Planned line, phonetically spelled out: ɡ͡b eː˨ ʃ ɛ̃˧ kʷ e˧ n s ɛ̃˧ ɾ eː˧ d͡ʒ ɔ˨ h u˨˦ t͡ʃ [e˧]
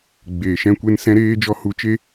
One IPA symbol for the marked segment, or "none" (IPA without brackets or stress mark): e˧